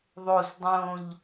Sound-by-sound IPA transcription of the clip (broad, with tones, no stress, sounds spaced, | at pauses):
ðˤ o˨˩ z dˤ õ˨˩ ʎ